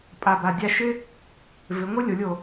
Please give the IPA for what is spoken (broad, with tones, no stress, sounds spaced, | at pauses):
pʼ a˨˩ b a˨˩ dʲ a˧ ʃ ɪ˥ | v ɪ˩˧ ŋʷ ɪ˥ lʲ o˩˧ lʲ o˨˩